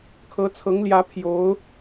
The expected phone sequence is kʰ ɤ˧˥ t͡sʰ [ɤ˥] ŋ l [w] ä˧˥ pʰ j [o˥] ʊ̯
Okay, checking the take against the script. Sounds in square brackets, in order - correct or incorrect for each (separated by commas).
incorrect, incorrect, incorrect